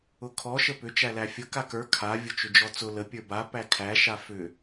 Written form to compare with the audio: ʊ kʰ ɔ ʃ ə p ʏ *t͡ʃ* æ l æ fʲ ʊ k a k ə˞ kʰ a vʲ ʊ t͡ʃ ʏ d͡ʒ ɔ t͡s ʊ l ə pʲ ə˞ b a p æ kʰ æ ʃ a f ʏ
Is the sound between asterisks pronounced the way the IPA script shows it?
yes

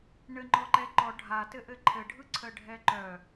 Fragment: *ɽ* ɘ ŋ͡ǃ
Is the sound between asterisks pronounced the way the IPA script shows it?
no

